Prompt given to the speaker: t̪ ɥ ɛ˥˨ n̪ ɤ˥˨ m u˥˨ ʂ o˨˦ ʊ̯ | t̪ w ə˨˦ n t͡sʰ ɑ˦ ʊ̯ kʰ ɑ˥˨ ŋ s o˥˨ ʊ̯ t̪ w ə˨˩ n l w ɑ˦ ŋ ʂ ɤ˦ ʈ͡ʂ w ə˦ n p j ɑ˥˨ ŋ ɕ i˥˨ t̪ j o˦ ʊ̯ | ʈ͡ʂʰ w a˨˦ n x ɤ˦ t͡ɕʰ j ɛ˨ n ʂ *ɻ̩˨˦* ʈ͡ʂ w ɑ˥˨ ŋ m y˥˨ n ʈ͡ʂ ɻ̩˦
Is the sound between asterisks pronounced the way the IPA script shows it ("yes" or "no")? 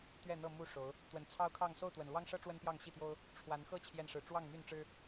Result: no